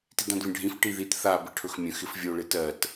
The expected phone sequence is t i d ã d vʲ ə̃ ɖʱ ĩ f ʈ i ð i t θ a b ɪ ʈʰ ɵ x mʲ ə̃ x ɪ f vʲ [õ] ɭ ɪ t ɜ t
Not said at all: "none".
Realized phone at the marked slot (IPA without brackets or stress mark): o